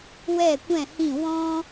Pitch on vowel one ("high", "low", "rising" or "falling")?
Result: falling